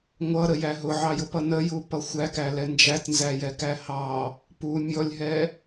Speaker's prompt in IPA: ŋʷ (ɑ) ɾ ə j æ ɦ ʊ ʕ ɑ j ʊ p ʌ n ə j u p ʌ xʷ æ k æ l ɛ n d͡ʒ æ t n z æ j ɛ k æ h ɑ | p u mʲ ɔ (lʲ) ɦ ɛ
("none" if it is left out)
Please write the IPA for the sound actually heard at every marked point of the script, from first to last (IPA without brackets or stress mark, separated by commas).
ʌ, lʲ